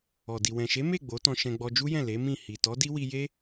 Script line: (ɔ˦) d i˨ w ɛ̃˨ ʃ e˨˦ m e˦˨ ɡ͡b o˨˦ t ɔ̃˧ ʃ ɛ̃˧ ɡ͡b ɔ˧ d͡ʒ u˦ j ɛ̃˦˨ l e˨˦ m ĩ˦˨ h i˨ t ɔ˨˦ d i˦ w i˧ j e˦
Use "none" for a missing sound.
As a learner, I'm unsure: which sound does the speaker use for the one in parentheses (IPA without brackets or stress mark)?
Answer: ɔ˨